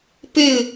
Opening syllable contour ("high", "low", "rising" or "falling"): falling